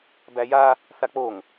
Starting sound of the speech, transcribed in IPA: b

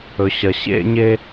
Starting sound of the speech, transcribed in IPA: ɵ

